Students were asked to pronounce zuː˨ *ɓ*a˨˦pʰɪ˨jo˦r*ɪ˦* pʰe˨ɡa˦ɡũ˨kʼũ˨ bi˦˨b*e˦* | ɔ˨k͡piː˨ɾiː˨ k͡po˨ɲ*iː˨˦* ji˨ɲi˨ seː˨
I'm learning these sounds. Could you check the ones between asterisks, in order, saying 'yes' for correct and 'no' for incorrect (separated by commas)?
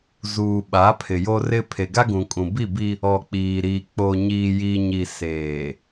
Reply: yes, yes, no, no